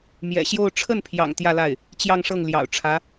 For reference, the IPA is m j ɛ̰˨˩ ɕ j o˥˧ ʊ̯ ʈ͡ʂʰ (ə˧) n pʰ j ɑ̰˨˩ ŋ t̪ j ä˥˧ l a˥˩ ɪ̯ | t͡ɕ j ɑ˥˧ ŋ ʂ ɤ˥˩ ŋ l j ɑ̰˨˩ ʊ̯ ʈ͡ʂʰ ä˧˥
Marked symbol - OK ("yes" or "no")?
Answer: no